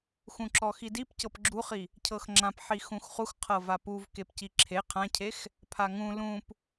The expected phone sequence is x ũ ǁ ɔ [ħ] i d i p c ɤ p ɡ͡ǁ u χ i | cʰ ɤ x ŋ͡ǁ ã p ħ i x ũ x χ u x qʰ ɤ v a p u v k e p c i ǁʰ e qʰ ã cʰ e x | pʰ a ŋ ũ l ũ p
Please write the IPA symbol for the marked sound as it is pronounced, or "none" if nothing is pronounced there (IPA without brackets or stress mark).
x